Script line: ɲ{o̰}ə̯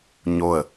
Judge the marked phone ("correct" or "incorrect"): incorrect